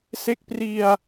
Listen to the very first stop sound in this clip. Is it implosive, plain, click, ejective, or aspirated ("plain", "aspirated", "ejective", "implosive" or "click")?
plain